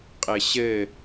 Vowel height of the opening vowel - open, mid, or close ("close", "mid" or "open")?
mid